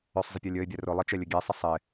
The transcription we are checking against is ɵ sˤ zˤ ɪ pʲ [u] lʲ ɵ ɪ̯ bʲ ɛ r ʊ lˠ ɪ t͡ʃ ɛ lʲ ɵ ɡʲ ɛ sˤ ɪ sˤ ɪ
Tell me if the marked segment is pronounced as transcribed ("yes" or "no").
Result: no